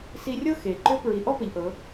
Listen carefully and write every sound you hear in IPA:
si˧rʲɤ˥ xe˩ ǃʏ˧˥ pɹi˩˧ ʔɔ˥pə˩˧ʎʔɤ˩˧

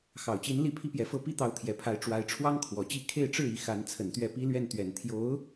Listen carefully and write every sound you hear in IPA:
xɑ˨˩ʊ̯t͡ɕi˧˥n li˥˩pʰi˥pjɛ˧˥fɤ˥˧ pi˥˩t̪ɑ˧˥ʊ̯ t̪ʰjɛ˨˩pʰa˧˥ɪ̯ ʈ͡ʂwa˧˥ɪ̯ʈ͡ʂʰwɑ˥ŋkʰwɔ˨˩t͡ɕi˥˧ kʰe˥˧ɪ̯ʈ͡ʂɻ̩˥˩ i˧˥ xa˧˥nt͡sʰə˨˩nt̪ɥɛ˥˩pi˥ lɥɛ˥˩nt̪ɥɛ˨˩n t̪ʰjo˧˥ʊ̯

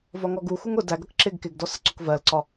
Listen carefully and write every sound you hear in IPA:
vɒŋɔɡuxuŋ ʊ dæɡʌk ǁɪɡ kɪɡdɔs əǀʊkvɜlǀɒ

